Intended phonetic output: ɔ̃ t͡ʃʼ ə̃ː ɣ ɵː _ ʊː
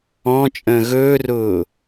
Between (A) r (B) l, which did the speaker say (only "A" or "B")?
A